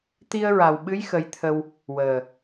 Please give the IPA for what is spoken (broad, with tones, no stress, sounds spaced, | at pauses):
t̪ i˧ ə̯ ɹ a˨˩ w ɓ ɨ˧˥ j x ə˧˥ j t̪ʰ ə˧ w | w əː˨˩